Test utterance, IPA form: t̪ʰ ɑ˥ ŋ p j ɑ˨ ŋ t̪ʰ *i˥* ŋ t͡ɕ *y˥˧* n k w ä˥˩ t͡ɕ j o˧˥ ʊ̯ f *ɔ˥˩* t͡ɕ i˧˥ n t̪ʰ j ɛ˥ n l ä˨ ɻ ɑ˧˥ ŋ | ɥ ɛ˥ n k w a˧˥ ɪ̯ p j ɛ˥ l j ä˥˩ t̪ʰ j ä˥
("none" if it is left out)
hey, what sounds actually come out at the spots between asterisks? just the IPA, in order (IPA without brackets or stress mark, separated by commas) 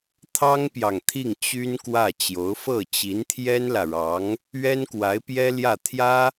i˥˩, y˥, ɤ˥˩